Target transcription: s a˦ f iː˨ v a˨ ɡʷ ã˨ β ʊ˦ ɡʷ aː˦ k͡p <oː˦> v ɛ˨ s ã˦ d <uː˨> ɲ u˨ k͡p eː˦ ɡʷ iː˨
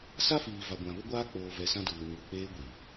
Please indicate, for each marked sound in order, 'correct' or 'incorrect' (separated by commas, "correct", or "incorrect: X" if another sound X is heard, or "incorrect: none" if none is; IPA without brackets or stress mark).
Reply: incorrect: oː˨, correct